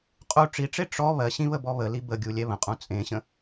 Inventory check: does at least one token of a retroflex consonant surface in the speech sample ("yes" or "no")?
yes